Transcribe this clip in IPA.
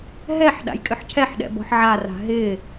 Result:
ɦ ɛ ħ ɗ a̰ j kʼ ʏ ħ cʰ ɛ ħ ɗ ɛ̰ b ɔ̤ ħ ʕ a r a̤ ɦ ɪ

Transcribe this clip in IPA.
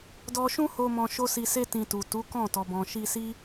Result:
d ɔ˧ ʃ ũ˦ h o˧ m ɔ̃˧ ʃ o˦ s i˧ s e˦ t ĩ˧ t u˨ t u˨˦ k ɔ̃˦˨ t ɔ˨ b ɔ̃˨ ʃ i˧ s i˦

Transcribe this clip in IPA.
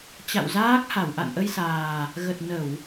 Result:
t͡ɕ a̰˧˨ w z aː˦˥ k̚ h a˧˩ w ʔ a̰˧˨ n ʔ ə˧ j s aː˨˩ | ɣ ə˨˩ t̚ n ə˧˩˨ w

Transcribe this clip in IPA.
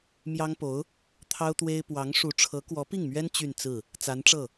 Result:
m j ɑ˥ ŋ p o˧˥ ʊ̯ | t̪ʰ ɑ˥ ʊ̯ t̪ w e˥ ɪ̯ p w ɑ˧˥ ŋ ʂ u˧˥ ʈ͡ʂʰ ɤ˧˥ k w ɔ˧˥ p i˥˩ ŋ m ɥ ɛ˥ n t͡ɕ y˥˧ n t͡s ɹ̩˥˩ | t͡s a˧˥ n ʈ͡ʂ ɤ˥˩

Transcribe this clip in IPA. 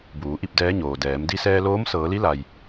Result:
b uː˩˧ ʔ i˥˨ p̚ d ɛː˧˥ ɲ oː˩ d ɛː˩˧ m d i˧ s ɛː˧ l oː˧˥ m s ɤː˩˧ l i˧˥ l a˩ j

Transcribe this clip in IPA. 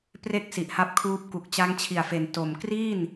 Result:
p r e˥˩ k̚ s i˨˩ ʔ h a˦˥ p̚ kʰ uː˦˥ p̚ k u˨˩ k̚ t͡ɕ a˧ ŋ t͡ɕʰ i˨˩ a̯ f e˩˦ n t o˨˩ m k r iː˥˩ n

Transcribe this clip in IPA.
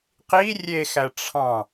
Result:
q i rʲ e x æ ʈ͡ʂʰ ɑ̃

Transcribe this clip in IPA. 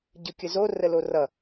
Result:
ɟ ɯ kʲ ə z o r ə l o r ʌ

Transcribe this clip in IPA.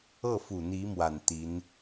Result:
ɤ˥˩ f u˨˩ n̪ i˧˥ m w a˨˩ n t̪ i˧˥ n

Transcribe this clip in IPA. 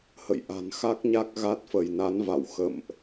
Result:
h ə̰˧˨ j ʔ a̤˨˩ n x a˦˥ k̚ ɲ a˦˥ k̚ ɣ a˦˥ t̚ f ə˧˩ j n a˨˦ n v a̰˧˨ w x ə̰˧˨ m ʔ

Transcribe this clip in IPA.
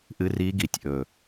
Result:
ʔ ɨ˦˥ r i˦˥ ɡ i˩˧ tʲ ʔ ɵ˨˩

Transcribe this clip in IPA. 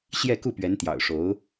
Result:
ɕ j ɛ˥˧ k u˥˩ p ɥ ɛ˧˥ n t̪ j ɑ̰˨˩ ʊ̯ ʂ o˧˥ ʊ̯

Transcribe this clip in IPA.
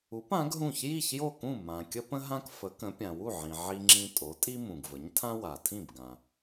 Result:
u˩˥ p ã˩˥ ɡ ɦ ũ˥˩ ç j i˥˩ ç j o˥˩ k ũ˥˩ m ã˩ kʲ ə˥ p ə̃˥ ɦ ã˥ k f ə˩˥ k ə̃˩˥ pʲ ã˩ w u˥˩ ʕ ĩ˩ ʕ i˧ ŋ͡ǁ ĩ˧ tʼ o˩˥ tʼ i˥ m ũ˩ ɡ v ə˩˥ ɲ tʰ ã˥ w a˩ tʰ ĩ˥˩ b ɡ ã˩

